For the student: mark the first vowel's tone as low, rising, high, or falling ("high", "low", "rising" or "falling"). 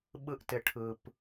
high